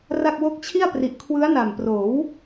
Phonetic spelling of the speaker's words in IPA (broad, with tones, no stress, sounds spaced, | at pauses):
r a˥˩ k̚ w o˦˥ k̚ t͡ɕʰ i˥˩ a̯ p r i˨˩ ʔ kʰ w ɯ˦˥ a̯ n a˨˩ m p r oː˩˦ w